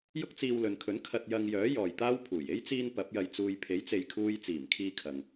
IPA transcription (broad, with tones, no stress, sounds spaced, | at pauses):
j ʊ˥ k̚ t͡s iː˧ w l ɵ˨ n kʰ ɵ˨˥ n kʰ ɐ˧ t̚ j ɐ˧ ŋ j œː˨˥ j ɔː˨ j t̪ aː˥ w pʰ uː˨˩ j e˥ j t͡s iː˧ n p ɐ˨˥ p̚ j ɐ˧ j t͡s uː˧ j pʰ e˨˥ j t͡s e˨ j kʰ uː˧ j t͡s iː˨˩ m kʰ iː˧ kʰ ɐ˨ ŋ